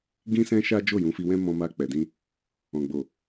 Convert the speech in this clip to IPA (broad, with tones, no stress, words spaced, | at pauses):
ɡĩ˦sɛ̃˦ʃa˦ d͡ʒo˦˨jũ˨˦fi˧wɛ̃˦ mɔ̃˧ma˧k͡pɛ˨dĩ˧ | ɔ̃˨ɡ͡bo˨